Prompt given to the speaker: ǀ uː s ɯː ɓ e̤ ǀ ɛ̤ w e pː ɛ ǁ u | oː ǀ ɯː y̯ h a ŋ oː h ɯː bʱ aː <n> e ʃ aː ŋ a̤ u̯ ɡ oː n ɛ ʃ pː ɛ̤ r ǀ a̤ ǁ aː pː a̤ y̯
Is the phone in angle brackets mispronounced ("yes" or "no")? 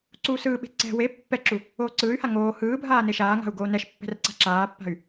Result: no